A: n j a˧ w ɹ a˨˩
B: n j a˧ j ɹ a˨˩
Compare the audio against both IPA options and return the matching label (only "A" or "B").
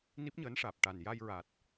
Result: B